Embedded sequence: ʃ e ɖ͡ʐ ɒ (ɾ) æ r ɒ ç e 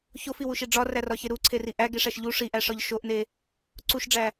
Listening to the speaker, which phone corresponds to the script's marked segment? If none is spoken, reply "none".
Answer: r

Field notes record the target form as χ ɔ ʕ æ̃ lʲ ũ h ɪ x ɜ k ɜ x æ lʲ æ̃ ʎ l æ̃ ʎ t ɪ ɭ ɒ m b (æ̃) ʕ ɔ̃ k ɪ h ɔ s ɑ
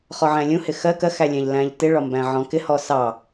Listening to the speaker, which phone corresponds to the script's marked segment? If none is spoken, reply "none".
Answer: æ̃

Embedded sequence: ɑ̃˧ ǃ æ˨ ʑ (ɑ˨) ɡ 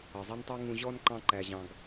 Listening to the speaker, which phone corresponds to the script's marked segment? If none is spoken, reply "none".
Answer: ɑ̃˨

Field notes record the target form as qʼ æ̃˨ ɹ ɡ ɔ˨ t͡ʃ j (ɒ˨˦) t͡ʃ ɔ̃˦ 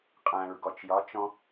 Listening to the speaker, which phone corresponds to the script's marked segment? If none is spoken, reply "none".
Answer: ɒ˨˦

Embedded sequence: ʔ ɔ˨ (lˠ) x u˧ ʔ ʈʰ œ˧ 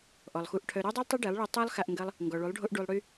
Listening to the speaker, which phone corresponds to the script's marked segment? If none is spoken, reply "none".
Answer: lˠ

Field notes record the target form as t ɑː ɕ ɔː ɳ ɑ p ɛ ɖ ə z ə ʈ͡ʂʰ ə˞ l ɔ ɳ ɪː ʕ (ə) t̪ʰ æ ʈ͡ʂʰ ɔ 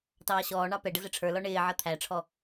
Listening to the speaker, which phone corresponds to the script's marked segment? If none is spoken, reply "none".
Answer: ʌ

